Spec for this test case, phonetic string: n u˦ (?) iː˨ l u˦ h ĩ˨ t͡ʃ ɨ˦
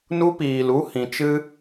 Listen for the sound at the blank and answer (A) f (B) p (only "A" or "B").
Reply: B